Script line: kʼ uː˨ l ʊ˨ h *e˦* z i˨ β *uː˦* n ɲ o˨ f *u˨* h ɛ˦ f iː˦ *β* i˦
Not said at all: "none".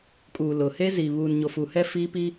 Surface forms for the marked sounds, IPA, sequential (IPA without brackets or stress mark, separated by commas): e˦, uː˨, u˨, p